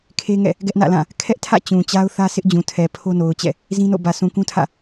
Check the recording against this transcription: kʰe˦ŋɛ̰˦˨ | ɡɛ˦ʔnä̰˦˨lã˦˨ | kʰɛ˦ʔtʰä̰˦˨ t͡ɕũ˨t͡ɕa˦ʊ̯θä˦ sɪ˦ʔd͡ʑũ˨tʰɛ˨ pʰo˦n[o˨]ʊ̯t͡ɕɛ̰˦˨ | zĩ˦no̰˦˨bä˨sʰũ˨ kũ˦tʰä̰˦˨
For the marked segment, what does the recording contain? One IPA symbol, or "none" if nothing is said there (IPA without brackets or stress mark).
o˨